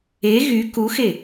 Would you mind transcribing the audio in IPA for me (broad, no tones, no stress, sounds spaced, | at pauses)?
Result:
e ɣ y k u x e